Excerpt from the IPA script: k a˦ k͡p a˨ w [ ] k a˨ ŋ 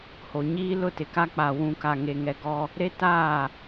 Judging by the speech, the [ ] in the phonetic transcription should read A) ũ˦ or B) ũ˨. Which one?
B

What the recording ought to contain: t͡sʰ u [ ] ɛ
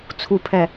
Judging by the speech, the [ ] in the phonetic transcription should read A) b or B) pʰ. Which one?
B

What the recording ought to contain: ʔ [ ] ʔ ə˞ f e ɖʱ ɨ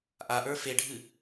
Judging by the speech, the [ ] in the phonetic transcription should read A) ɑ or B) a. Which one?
B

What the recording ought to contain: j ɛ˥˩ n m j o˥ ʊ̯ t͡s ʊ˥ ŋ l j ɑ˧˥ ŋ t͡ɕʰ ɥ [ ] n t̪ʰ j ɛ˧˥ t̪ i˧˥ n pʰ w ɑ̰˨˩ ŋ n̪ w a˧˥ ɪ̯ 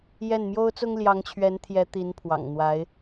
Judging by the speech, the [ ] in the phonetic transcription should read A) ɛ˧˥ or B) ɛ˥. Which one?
A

